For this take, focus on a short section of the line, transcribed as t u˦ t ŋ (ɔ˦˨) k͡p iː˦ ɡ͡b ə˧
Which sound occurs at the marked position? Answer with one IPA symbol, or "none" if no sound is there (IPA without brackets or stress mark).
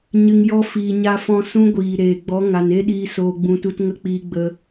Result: ə˦˨